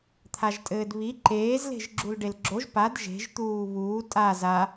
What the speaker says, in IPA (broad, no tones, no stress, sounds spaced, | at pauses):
t̪ʰ a ʒ tʼ ɘː d β i ǃ eː z l e̤ ʒ ɡ͡ǁ u l ɖ e l ɡ͡ǁ o ʒ p a d ʒ e̤ ʒ t̪ uː β uː tʼ a z a